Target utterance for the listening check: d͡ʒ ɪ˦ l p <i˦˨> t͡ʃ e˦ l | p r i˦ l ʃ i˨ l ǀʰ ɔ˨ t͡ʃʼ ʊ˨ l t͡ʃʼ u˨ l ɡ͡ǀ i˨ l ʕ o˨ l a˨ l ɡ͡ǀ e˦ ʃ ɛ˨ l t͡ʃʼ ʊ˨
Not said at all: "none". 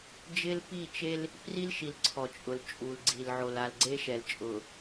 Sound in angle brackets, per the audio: i˦˨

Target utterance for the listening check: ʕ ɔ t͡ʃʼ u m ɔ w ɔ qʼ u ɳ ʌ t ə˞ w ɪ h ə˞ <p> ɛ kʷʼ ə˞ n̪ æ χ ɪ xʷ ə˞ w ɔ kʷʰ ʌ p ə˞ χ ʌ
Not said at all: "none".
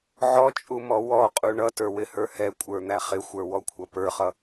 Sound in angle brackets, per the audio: h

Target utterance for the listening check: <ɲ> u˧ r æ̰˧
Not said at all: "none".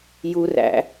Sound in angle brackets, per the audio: j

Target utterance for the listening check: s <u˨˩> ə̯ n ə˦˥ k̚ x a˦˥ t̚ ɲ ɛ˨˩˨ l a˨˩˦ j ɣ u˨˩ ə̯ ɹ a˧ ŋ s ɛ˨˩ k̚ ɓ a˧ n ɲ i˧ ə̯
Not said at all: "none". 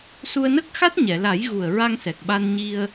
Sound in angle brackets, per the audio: u˧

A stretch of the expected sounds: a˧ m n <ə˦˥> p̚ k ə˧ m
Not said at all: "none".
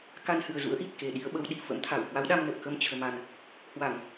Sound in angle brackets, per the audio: ə˨˩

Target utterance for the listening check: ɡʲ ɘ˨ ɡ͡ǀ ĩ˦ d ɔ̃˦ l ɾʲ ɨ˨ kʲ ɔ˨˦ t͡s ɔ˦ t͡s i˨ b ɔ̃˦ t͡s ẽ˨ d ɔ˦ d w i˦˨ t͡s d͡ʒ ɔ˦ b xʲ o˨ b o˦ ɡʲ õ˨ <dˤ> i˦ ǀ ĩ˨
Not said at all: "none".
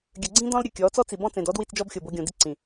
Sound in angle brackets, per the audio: d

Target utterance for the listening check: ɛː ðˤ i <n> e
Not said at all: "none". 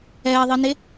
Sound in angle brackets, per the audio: n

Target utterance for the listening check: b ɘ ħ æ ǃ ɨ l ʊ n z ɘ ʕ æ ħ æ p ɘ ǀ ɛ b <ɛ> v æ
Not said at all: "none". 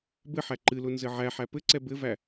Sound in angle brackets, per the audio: ɘ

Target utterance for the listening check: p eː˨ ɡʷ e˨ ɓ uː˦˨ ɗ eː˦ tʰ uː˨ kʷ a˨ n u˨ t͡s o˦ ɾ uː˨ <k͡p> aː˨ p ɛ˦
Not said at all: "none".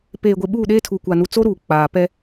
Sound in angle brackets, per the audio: k͡p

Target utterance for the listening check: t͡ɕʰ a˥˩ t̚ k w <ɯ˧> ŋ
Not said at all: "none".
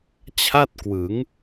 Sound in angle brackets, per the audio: ɯ˩˦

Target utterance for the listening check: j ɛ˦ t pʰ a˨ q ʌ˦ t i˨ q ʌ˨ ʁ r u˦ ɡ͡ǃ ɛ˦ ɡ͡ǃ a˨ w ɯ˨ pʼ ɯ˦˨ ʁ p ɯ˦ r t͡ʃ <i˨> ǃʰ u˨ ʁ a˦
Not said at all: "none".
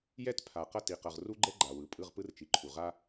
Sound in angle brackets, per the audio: i˨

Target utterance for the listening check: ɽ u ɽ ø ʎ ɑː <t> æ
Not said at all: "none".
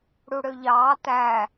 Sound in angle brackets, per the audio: t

